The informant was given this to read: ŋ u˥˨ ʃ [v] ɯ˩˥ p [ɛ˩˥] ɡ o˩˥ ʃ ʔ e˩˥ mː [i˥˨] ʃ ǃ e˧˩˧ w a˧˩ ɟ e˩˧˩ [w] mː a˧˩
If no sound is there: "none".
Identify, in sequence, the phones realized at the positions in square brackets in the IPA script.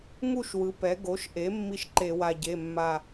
w, ɛ˩˥, i˥˨, none

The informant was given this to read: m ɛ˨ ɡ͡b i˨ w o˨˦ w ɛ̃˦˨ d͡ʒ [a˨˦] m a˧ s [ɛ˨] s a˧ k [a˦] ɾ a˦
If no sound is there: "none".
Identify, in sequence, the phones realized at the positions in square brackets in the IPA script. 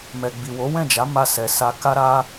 a˨˦, ɛ˨, a˦

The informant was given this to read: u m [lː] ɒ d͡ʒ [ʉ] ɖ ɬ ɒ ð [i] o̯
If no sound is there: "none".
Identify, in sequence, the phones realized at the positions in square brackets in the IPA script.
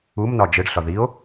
n, ɘ, i

